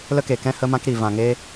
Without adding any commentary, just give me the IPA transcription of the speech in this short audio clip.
lə˦ke˧kɛ̃˦ hə˦mã˦kɾi˧ vã˧ŋe˦

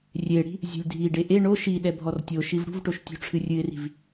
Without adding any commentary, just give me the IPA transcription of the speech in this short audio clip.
rʲeɽi̤ | zʲṳlʲdʱiɖe ʔe ɳo ʃiɗɛ bʱɔrtʲoʃiv ɽṳvʈoʃ tʲṳʈ͡ʂʰɨrʲɨɪ̯ri̤v

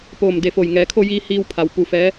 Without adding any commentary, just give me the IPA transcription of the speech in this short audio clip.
poː˧˩mde˧˩fo˧˩j ŋɛː˩˧kʰo˧jiː˧ hiː˧wpʰa˩w pu˩ fɛː˧˥

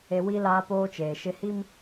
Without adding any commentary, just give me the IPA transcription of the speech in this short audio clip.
e˦ wi˦ laː˦poː˦t͡ʃeː˨ ʃɪ˦ hi˦m

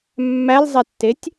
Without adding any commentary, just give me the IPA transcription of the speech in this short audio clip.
mːælzˤɛtːetʲ

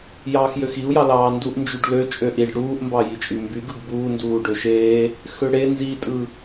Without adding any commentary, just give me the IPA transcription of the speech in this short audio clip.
jɑːxjøxiu̯jɑ lɑːnduʔnd͡ʒyɖ lø t͡ʃʼøʔiɖ ɽuːʔmbɑ jit͡ʃʼymbyɡɯɡ buːnduːɖø ʃeː | xøɽe nzitʼɯ

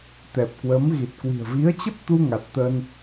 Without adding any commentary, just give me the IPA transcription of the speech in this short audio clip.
t̪ɛ˨˩p̚kwə˨˦m ɣi˨˩t̚kwi̤˨˩ə̯ vi˨˦ə̯t͡ɕə˦˥p̚t̪u˧ ŋa˨˩t̚t̪ə˧n

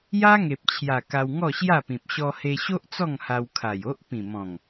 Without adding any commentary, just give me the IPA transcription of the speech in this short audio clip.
ja˦ ŋe˨p̚t͡ɕʰja˨˩ ka˧wŋɔ˥˧ɕja˥˧pĩ˨p̚ ɕɔ˧he˧ɕo˦ʔ t͡sɔ˥˧ŋha˧wkʰa˨˩j o˦ʔpĩ˨˩mɔ̃˨˩ŋ

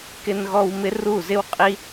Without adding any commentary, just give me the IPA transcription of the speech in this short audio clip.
kɪ˧nɣɔ˧w mɪ˦ru˦˨zɪ˦wqʼi˦

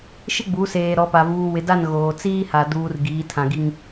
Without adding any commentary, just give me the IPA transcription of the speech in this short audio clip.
ʃɪ˦ɡ͡bu˨˦seː˨ ɾɔ˨˦pa˨ vuː˨ wɪ˨da˦˨n ɣoː˨ t͡siː˦ha˨ duː˨r ɡiː˨˦tʰã˨ɡi˦ŋ

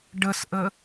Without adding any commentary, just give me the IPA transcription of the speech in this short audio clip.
ɖəsʔə

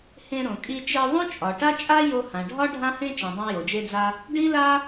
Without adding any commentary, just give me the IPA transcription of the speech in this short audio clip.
hẽ˧ɾõ˩kʼi˧ t͡ʃe˧ðˤõ˥t͡ʃʼɒ˩ ʈa˥t͡ʃʼa˥ jo˧hã˩ɖʱɒ˥ ɖʱã˥hẽ˥ t͡ʃĩ˩dˤã˧ jo˩d͡ʒe˧d͡za˧ | ɖĩ˥la˥

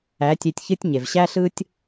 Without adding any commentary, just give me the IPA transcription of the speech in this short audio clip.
æ˨˦tʲe˧tʲçɨ˦tʲ ɲe˨vɕæ˦ɬɯ˦tʲ

